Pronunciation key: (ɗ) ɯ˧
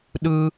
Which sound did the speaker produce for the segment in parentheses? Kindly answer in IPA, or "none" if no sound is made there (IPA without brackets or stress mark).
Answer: ɗ